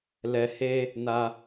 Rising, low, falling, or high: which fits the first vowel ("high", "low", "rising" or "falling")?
low